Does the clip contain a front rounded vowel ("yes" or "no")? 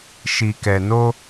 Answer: no